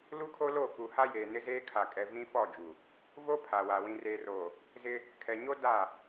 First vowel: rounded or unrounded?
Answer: rounded